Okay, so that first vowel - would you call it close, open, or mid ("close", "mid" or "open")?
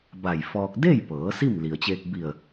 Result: open